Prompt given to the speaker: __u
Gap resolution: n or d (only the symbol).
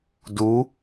d